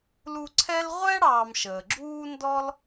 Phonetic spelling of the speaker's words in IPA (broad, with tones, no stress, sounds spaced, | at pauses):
l u˦ ǀʰ ɛ˥ l ʁʷ ɛ˥ ɽ ɑː˨ m ʃ əː˩ ɡ͡ǁ uː˦ n d ɔ˥ l